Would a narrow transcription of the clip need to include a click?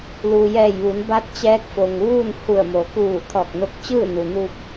no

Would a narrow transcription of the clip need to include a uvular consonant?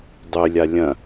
no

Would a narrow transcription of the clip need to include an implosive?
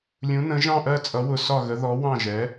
no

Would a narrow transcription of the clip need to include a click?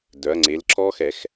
yes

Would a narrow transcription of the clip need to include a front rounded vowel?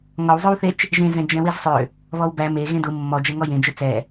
yes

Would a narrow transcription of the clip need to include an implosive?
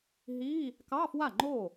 no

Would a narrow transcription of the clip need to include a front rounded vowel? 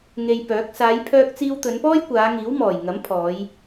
yes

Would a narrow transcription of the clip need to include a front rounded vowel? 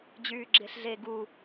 yes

